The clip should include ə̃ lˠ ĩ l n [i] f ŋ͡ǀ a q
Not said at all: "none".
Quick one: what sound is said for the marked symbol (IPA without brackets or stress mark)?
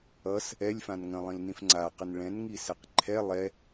ĩ